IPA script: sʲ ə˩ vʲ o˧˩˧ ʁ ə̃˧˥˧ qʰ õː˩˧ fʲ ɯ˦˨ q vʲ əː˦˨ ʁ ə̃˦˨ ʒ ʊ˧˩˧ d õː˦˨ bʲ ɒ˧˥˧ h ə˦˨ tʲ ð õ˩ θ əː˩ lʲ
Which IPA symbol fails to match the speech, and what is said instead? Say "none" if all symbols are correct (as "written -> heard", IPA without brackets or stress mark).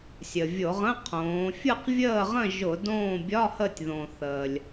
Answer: none